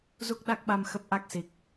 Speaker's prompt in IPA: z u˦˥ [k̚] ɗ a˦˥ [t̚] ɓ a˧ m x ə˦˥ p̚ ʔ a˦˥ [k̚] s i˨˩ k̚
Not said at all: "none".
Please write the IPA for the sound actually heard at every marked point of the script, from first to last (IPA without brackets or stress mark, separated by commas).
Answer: k̚, k̚, k̚